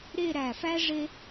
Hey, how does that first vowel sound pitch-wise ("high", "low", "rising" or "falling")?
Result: falling